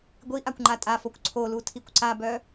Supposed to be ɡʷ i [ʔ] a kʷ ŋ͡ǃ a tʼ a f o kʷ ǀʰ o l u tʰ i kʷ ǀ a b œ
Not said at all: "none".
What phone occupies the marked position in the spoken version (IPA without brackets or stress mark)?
ʔ